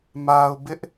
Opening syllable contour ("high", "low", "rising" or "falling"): low